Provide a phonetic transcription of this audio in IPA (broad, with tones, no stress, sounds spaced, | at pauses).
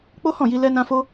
k͡p o˦ h ɔ̃˦˨ j i˧ l ɛ˦ n ã˦ f o˦